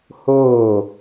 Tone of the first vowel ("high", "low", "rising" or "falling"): falling